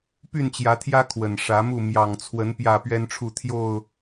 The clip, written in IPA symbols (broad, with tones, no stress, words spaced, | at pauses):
py˥˨nt͡ɕjä˨˦t̪ʰjä˦ kʰwə˨˩nʂä˨˦mu˥˨ mjɑ˨˩ŋt͡sʰwə˨˦n pjä˥˨pɥɛ˦nʈ͡ʂʰu˥˨t̪ʰjo˥˨ʊ̯